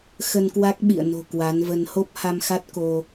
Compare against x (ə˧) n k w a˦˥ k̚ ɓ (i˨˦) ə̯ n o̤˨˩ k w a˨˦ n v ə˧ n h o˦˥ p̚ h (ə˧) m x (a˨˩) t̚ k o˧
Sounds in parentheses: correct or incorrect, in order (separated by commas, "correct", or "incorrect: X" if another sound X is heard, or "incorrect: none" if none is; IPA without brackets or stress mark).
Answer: correct, incorrect: ḭ˧˨, incorrect: a˧, incorrect: a˦˥